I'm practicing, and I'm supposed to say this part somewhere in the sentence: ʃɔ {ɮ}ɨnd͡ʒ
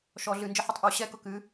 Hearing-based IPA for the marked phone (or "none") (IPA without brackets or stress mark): ɮ